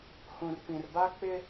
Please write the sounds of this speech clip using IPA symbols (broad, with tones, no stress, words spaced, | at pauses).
hũ˨r pĩ˨rba˦k͡pɪ˦